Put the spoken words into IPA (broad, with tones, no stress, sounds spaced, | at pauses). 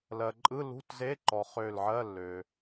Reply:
l ɜ˩ ǃʼ ɯ˧˥˧ l ṳ˧˥˧ t z e˧˥˧ ǃ ɔ˩ χ ø˧˩ l ʕ ɜ˧˥˧ lː ø˩